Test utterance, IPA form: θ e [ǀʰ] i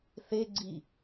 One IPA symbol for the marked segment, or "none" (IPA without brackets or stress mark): ɡ͡ǀ